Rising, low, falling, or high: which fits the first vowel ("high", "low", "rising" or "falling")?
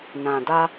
low